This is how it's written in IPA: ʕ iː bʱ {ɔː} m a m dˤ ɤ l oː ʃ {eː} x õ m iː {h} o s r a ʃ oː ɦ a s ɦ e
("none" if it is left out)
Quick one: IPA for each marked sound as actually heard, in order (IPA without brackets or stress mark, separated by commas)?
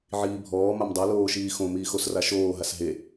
ɔː, iː, x